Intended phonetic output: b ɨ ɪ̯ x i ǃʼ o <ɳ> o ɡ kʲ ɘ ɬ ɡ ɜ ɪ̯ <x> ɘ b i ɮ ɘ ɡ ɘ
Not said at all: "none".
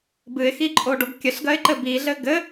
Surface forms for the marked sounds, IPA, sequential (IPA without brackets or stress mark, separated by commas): ɖ, ǃ